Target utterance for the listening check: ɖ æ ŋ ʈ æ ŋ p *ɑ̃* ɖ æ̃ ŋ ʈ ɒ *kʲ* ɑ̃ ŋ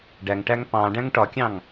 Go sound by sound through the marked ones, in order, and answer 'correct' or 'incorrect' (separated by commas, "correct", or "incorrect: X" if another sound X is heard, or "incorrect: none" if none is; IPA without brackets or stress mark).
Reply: correct, correct